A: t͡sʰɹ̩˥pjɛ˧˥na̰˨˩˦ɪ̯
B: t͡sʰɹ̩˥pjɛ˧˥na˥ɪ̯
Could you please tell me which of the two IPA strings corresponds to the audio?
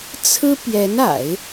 A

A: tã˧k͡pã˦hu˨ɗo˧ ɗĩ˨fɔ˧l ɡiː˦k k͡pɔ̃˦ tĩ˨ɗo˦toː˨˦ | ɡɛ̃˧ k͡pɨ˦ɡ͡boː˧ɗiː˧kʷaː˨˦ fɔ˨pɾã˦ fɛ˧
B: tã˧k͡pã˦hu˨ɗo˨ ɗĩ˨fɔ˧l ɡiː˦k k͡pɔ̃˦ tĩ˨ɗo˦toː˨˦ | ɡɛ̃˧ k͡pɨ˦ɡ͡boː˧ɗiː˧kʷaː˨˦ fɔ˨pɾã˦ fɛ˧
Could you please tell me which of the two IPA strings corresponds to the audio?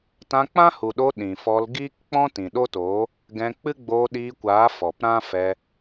A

